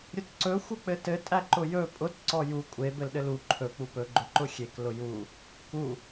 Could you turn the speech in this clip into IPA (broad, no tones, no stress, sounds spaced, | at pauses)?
ɾʲ ʊ t ǀ ɵ xʷ ɘ k͡p ɘ t ɘ tʼ æ ǃ ʊ j ɵ pʼ ʊ t ǀ ɔ j u kʷʼ e b ɘ l ɗ ɘ l u ǃʰ ɵ k͡p u p ɵ ɡ͡ǃ ʊ ǃ ʊ xʲ e k l ʊ j u | k u